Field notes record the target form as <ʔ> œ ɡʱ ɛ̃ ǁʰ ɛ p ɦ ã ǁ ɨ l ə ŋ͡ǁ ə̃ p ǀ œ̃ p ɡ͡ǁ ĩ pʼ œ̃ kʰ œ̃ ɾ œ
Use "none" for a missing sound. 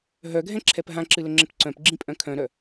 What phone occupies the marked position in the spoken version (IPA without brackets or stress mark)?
ɦ